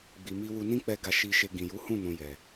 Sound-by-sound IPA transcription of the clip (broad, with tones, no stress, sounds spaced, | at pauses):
ɡ͡b i˨ m i˧ w u˧ n ĩ˦ k͡p ɛ˧ ɡ a˧ ʃ i˧ ʃ e˧ ɡ ĩ˨ j u˨˦ h ũ˦˨ n ũ˨ j ɛ˨